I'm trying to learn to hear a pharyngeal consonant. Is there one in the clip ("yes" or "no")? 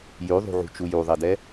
yes